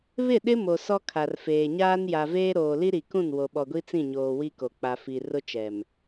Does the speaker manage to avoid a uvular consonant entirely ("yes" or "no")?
yes